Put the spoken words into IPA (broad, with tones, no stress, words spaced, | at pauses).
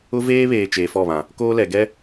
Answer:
ʊ˦ veː˦βeː˨ t͡ʃeː˨fɔ˦˨βã˨ | koː˦lɛ˨ ɡɛ˦